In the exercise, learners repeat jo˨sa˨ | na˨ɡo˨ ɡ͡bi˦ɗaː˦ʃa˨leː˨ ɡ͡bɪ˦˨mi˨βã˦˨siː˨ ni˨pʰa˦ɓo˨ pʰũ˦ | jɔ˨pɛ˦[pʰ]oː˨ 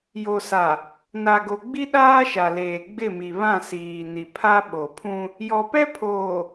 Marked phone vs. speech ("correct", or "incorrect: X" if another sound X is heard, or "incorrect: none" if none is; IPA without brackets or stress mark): correct